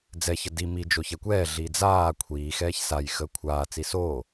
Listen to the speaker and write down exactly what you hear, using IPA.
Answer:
d͡zɛçə di mid͡ʒo çɛkʷɛːɮiː d͡zaː kʷʰiːxɛːç saj xəːkʷʰaːt͡si so

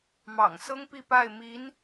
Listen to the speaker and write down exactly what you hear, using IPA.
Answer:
mɑ̰˨˩ŋsɤ˥ŋpi˥˧ pa˥˩ɪ̯mi˧˥n

